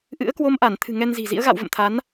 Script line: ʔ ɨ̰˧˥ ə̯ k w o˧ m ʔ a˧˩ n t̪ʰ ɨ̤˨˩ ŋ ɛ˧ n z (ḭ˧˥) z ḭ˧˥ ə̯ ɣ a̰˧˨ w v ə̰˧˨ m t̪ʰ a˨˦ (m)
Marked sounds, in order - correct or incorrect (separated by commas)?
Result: incorrect, incorrect